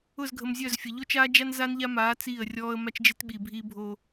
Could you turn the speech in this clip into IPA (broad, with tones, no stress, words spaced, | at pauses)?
ʊ˦˨zɡʱə˨mzʲœ˦˨zfʲə˨ ʎo˦t͡ʃaː˦d͡ʒa˦n za˦nʎa˦maː˨˦ t͡siː˦˨ə̯rʲɔː˦ə̯ ma˦t͡ʃd͡ʒe˦tɓiː˨ bʱiː˦bʱo˦